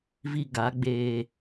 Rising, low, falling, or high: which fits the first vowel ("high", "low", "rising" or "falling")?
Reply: high